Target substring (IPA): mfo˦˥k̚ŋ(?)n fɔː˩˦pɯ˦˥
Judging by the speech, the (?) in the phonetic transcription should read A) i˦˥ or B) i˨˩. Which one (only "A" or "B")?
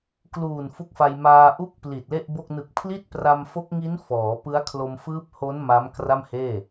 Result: A